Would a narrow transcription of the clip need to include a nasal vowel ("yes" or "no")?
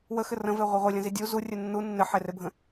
yes